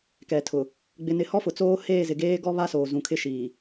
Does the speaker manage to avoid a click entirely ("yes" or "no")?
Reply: yes